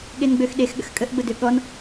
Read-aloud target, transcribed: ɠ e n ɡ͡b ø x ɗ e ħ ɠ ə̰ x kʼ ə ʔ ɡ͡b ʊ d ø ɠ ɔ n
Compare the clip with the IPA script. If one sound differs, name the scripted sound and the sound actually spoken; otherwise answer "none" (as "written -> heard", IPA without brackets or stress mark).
ħ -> x